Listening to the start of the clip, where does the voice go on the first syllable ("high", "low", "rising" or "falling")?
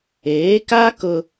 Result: rising